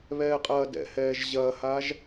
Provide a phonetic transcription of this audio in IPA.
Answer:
βɛːqʼɐːdɛ̰hɛːʒ ʑɐːhaʒ

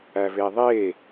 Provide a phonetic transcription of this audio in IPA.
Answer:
æveðˤe

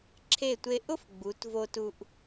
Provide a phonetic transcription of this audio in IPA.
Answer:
ǁʰe˧˩tʷe˧ʔʊ˥f ɡ͡bu˩˧tvo˧tu˧ʔ

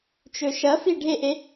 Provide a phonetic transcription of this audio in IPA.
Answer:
t͡ʃɵʃɐfi ɖʱeʔe

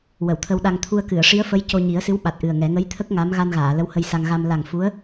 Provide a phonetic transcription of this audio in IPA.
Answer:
wə˨˩˨wt̪ʰə˧w ɗa˧ŋ t̪ʰu˧ə̯ kɨ˨˩˨ə̯ ʂi˧˥ə̯fə˧˥j co˧ɲi˨˩˦ə̯sɨ˧˥w ɓa˨˩t̚ʔɨ˨˩ə̯ŋɛ˨˩˦ ŋə˧˥jt̪ʰə˦˥k̚ ŋa˧˥m ɣa˧nɣaː˨˩˨ lə˧˥whə˧jsa˧ŋ ɣa˧m la˨˩ŋ fu˧˥ə̯

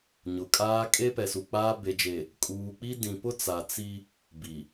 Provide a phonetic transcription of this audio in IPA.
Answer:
ɲʊ˨kʼaː˦ kʼe˦pɛ˨su˨k͡paː˦ be˨d͡ʒe˨ | kʼuː˨k͡pi˦ dĩ˨pʊ˦t͡sa˨ t͡si˦ | bi˨

